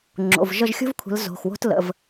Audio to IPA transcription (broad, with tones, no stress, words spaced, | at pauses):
ŋ͡ǁo̰˩˧˩vʒə˥˧ʒ xʲo̤˥v kʷʰə̤˨˦l zo̤˩˧˩xwo̤˥t lə̰˩˧˩v